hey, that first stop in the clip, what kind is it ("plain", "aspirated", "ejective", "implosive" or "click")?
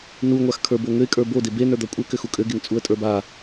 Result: aspirated